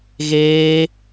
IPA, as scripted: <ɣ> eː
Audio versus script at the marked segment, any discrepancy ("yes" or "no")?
no